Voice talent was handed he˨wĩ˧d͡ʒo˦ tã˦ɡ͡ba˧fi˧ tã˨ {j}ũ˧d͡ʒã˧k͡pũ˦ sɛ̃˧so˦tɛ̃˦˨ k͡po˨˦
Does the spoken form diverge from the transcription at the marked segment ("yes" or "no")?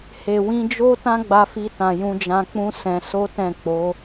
no